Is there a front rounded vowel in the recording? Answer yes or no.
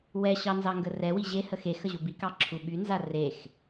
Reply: yes